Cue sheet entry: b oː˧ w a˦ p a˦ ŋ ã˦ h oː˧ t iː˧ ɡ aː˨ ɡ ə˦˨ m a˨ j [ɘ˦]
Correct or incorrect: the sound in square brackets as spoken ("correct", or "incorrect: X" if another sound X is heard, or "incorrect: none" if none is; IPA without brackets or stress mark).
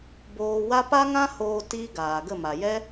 incorrect: ɛ˦